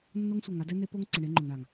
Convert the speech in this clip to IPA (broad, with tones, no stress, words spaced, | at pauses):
nːo˦ŋsʷɛ˨ŋa˦ dɛ˦ne˦po˦ŋǀɪ˨ ɳe˦ŋ͡ǃʊ˨ŋɳa˨ŋ